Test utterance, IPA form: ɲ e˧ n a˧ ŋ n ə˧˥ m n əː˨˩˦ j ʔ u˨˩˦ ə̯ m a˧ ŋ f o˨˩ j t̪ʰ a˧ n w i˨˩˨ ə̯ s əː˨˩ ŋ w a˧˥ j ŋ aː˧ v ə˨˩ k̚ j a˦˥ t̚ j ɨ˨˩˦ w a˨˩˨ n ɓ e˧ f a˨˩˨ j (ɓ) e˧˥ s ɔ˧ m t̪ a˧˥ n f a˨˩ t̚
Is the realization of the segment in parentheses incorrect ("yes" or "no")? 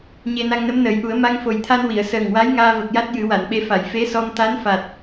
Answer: yes